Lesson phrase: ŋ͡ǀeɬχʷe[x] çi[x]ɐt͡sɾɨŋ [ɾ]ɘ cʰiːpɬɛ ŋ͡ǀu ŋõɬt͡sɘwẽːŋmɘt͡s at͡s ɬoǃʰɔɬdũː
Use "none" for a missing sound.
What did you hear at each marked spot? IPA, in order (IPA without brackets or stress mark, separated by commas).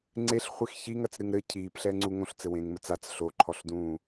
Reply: x, ŋ, ɾ